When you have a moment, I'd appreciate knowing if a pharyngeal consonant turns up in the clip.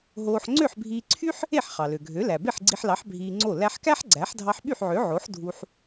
yes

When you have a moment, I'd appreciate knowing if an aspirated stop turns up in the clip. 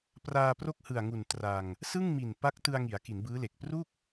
no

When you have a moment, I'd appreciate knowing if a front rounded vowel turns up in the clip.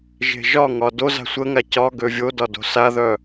yes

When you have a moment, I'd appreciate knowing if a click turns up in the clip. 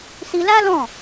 no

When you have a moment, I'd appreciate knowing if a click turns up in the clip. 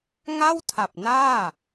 no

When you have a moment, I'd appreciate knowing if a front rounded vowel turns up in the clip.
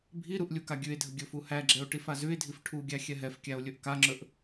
no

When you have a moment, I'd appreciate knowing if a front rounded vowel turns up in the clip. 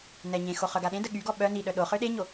yes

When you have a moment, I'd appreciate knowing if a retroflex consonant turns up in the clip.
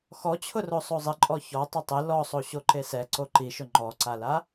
no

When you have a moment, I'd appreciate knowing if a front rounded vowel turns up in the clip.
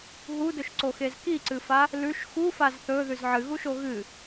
no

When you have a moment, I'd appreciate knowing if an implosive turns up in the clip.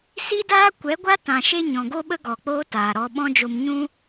yes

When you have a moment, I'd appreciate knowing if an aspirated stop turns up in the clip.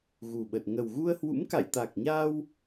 no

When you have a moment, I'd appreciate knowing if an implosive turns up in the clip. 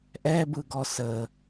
no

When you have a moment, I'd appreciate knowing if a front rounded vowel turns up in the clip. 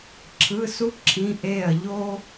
no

